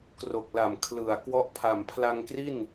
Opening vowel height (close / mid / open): mid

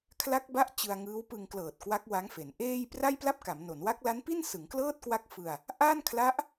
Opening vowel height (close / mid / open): open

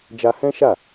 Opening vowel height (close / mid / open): open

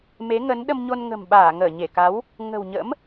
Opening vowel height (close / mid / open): mid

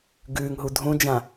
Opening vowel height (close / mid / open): close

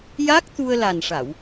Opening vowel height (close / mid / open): open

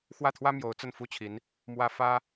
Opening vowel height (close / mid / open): open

